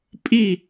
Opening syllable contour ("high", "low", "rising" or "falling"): falling